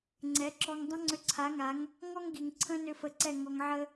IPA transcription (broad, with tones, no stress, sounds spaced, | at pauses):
ŋ͡ǀ ɛ˨˦ ǁ ɔ˧ ŋ dˤ ə̃˦ ŋ͡ǀ ʏ˧ ǀʰ a˨˦ ŋ a˨˦ ŋ | ŋ ɔ˦ ŋ ɡ i˨ ŋ ǀʰ ə̃˦ n ʏ˧ f ə˧ ǀ ɛ˦˨ ŋ ɔ˨ ŋ ʕ ə˧